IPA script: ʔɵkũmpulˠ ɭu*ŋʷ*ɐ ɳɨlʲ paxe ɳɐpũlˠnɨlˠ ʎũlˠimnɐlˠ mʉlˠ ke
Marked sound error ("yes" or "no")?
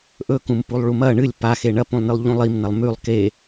yes